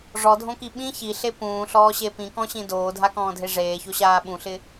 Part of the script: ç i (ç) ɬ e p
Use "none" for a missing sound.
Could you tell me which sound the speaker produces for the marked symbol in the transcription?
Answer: none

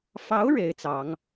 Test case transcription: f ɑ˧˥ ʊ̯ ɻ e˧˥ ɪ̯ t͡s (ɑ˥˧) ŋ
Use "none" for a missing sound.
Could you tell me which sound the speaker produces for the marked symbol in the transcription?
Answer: ɑ˧˥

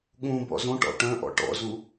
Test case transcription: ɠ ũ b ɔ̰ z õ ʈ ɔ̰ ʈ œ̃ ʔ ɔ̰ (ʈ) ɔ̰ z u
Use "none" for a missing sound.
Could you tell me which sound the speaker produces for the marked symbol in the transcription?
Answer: ʈ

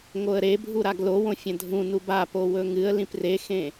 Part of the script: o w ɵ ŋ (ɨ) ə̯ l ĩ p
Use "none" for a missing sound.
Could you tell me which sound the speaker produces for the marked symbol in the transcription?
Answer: ɨ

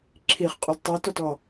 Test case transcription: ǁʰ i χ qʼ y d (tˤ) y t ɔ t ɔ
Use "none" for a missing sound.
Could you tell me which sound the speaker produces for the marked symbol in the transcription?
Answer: tˤ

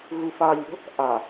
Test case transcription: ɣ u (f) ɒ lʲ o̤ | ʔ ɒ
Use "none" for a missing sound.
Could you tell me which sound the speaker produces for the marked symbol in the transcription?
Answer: f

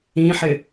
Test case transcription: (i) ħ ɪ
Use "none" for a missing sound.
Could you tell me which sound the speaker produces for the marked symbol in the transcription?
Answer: ĩ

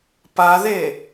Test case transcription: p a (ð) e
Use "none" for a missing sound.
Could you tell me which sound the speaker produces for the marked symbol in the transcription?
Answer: ð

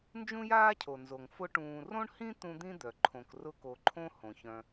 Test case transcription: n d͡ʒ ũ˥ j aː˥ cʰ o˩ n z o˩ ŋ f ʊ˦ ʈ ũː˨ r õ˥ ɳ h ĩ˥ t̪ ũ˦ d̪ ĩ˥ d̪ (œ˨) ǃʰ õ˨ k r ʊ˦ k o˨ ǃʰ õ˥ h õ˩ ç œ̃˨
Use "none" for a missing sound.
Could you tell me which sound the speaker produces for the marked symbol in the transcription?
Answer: œ˩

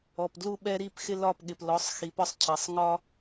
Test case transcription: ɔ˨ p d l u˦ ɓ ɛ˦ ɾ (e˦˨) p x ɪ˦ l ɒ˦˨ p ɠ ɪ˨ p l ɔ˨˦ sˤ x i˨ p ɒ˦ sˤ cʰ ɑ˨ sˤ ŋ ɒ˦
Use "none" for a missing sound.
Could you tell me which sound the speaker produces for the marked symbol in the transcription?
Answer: i˦˨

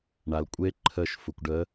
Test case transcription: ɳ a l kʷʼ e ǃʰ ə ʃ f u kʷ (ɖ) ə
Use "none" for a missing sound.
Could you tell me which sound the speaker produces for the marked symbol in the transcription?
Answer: ɖ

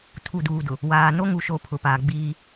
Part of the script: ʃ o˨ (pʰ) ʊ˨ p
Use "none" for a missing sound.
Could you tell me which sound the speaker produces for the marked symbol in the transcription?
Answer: pʰ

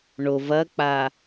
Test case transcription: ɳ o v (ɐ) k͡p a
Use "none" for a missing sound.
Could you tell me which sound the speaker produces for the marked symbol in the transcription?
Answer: ɐ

